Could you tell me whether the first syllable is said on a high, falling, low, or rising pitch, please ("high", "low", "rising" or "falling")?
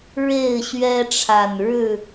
falling